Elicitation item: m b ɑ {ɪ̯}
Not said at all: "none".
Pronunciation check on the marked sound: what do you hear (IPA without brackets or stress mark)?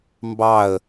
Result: ə̯